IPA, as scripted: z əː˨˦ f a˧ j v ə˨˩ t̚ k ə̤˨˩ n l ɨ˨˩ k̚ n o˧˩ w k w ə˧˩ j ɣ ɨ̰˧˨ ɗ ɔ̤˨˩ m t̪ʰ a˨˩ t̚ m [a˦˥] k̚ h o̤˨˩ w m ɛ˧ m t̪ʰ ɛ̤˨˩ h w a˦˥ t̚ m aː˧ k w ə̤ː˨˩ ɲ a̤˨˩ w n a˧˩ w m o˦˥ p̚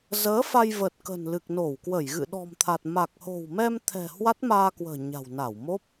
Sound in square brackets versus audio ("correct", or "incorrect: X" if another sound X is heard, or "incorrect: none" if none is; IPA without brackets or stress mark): incorrect: a˨˩